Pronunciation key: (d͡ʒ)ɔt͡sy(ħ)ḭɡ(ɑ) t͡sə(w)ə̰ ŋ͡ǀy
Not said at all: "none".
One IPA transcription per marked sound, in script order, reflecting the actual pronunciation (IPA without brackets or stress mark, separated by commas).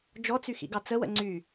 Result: d͡ʒ, x, ɑ, w